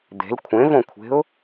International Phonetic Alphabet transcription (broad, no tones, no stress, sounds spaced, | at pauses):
d̪ e̤ l kʷʰ ẽ v õ kʷʰ e̤ ʊ̯